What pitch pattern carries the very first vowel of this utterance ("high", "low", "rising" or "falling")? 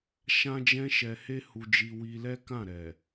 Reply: high